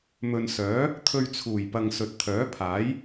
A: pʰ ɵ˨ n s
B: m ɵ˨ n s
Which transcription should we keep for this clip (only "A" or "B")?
B